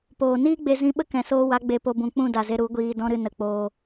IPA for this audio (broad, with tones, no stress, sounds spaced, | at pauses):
p oː˨ n iː˦ ɡ͡b e˧ z ĩ˧ ɓ ə˦ k ɛ̃˨ s oː˧ w a˨˦ ɡ͡b e˧ p o˧ b ũ˨ k͡p ũ˦˨ d a˨ z e˧ ɾ u˨˦ ɡʷ iː˧ d ɔ̃˧ ɾ ɨ˨ n ə˨ k͡p oː˧